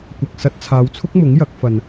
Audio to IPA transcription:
kʷ ɐ˨ k̚ s ɐ˧ t̚ t͡sʰ aː˨˧ w t͡sʰ ʊ˥ k̚ m ʊ˨˥ ŋ j ɐ˨˥ k̚ f ɐ˧ n

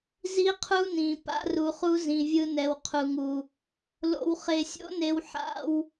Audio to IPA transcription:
z i˦ qʰ u˦ n ĩ˨ p a̰˦ r u˧ χ u˦ z ĩ˧ vʲ ɯ˦ n ɛ˧ w qʰ u˨ ŋ u˨ | l o̰˧ w χ e˧ sʲ o̰˦ n e˧ w ħ a̰˧ w

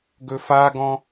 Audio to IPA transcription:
ɡ ɵ f a ɡ ɔ̃

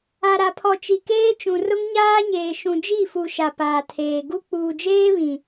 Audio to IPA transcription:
a˨ ɾ a˨ pʰ ɔ˨ t͡ʃ i˨ k eː˦ t͡ʃ ũ˨ r ʊ˦ ŋ ɲ aː˦ ɲ eː˨ ʃ ũ˨ d͡ʒ i˦˨ f u˨ ʃ a˨ p aː˨ tʰ eː˨ ɡ u˦ k͡p uː˨ d͡ʒ eː˦ β ĩ˨

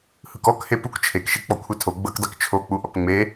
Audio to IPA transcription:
h ɯ k ɔ k h e p u k t͡ʃʰ e k ʃ i k͡p ɔ kʷʰ e tʰ o ɡ͡b ɤ k dˤ i k t͡ʃʰ o k͡p u ʔ ɔ k ŋ͡m e

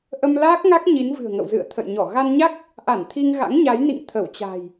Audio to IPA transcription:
ʔ ə˧ m l aː˦˥ k̚ ŋ a˦˥ k̚ ɲ i˨˦ n v ɨ̤˨˩ ə̯ ŋ ə̰˧˨ w z ɨ̰˧˨ ə̯ t̪ʰ ə̰˧˨ j ɲ ɔ˧˩ ɣ a˧ n ɲ a˦˥ k̚ | ʔ a˧˩ n t̪ʰ i˧ ŋ ɣ a̰˧˥ ŋ ɲ a˨˦ j n ḭ˧˨ ŋ t̪ʰ ə˧˩ w t͡ɕ a̤˨˩ j

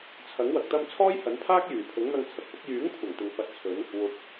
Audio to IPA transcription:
t͡sʰ ɐ˨˥ ŋ w ɐ˨ k̚ t̪ ɐ˧ m t͡sʰ ɔː˥ j h ɐ˨˥ n pʰ aː˥ k̚ j yː˨˩ pʰ ʊ˨˥ ŋ n̪ ɐ˧ ŋ t͡sʰ ɐ˨ k̚ f ʊ˨˥ k̚ j yː˨˥ ŋ kʷʰ ɐ˨˩ ŋ t̪ ɪ˨ ŋ f ɐ˧ t̚ t͡sʰ ɵ˨˥ n | w ʊ˨ k̚

